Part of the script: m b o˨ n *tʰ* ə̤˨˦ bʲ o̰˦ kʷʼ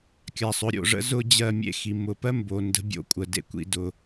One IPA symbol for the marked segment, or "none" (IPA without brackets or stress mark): d